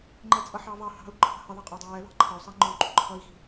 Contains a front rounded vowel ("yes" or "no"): no